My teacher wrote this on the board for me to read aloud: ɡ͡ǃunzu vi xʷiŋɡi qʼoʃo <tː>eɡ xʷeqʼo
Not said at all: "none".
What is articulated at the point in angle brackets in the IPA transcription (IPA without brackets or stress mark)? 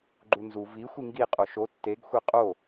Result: tː